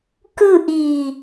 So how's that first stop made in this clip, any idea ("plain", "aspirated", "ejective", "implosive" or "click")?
plain